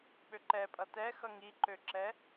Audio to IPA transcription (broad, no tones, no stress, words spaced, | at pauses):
ɓøǃɛpʼʌ tɛ xʌŋiǃøǁɛ